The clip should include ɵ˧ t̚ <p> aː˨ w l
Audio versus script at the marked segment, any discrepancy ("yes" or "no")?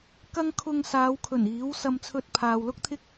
yes